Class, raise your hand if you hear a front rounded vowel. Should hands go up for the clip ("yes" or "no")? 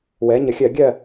no